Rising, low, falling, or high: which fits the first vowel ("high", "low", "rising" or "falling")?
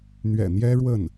low